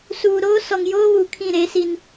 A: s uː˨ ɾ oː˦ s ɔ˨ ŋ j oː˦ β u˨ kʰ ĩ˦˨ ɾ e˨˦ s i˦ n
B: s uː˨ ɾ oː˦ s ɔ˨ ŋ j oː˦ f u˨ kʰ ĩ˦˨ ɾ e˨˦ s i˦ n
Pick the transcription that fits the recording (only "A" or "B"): A